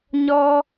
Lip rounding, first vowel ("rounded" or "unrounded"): rounded